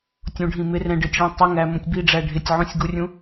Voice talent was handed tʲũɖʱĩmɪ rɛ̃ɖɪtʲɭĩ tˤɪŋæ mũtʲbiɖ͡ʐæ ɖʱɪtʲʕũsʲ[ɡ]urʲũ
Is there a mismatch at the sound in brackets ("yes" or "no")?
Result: no